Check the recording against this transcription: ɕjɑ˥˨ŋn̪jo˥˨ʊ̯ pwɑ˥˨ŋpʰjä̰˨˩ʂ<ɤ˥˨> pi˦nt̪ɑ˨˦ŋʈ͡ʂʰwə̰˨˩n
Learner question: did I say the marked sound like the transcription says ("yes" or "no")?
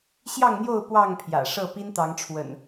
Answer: yes